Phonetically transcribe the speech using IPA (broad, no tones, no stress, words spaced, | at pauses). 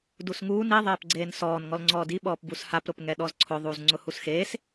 dusŋuːn i ðˤeːpɡ͡ǀeːnsɔːn ŋɔlŋ͡ǀɔːdi ɓɔːpbushap ɾʊpŋɛɗɔzǀʰʊ ðˤuːzŋ͡ǀʊhusxeːs